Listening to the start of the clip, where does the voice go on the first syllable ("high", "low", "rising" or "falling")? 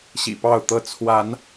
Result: low